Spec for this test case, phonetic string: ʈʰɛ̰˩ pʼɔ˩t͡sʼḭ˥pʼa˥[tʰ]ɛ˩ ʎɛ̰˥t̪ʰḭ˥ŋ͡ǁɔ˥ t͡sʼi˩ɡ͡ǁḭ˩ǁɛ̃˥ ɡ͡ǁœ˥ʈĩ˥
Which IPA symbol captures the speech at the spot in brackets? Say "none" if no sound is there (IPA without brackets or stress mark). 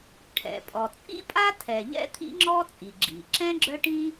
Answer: tʰ